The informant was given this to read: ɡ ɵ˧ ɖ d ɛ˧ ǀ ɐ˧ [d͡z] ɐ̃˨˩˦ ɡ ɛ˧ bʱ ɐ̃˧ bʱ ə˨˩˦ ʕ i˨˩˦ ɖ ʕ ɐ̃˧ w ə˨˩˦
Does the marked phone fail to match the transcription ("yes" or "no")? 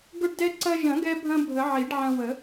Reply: yes